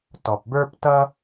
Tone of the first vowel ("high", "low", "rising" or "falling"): low